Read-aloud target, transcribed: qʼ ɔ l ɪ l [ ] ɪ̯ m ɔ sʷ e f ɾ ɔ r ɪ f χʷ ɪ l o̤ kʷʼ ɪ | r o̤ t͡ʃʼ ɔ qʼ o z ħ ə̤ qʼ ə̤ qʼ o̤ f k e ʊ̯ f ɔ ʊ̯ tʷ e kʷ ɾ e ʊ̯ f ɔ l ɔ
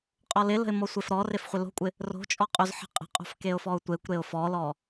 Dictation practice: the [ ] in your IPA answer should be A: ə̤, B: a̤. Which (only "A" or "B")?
A